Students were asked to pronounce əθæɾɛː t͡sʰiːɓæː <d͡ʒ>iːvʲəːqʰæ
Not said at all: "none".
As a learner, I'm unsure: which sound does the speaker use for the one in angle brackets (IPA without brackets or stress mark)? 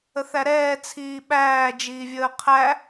d͡ʒ